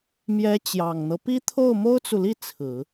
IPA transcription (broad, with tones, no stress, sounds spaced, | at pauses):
m j ɛ˧˥ t͡ɕ j ɑ˨˩ ŋ n̪ ɤ˦ p i˥ t̪ʰ o˥˩ ʊ̯ m o˥ ʊ̯ t͡s u˨ l i˥˩ t͡sʰ ɹ̩˨˩˦